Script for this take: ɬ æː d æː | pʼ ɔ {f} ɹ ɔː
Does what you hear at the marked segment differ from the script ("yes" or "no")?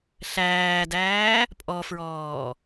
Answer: no